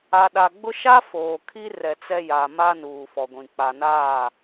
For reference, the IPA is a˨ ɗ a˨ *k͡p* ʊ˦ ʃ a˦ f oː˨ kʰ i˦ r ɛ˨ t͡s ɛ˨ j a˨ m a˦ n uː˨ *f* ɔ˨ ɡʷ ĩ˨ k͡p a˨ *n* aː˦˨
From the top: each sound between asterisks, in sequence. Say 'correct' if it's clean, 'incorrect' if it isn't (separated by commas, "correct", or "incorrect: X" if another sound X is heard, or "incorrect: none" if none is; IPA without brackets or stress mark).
incorrect: ɡ͡b, correct, correct